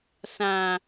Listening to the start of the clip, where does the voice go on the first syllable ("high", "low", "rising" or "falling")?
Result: low